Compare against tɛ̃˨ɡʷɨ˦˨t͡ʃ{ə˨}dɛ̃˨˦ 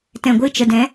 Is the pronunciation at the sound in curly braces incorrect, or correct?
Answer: correct